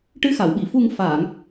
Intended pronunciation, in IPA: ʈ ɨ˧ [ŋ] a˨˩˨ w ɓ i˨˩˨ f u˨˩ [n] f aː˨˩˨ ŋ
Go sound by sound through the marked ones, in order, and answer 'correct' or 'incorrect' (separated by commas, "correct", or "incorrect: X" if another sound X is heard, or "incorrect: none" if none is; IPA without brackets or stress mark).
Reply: incorrect: x, incorrect: ŋ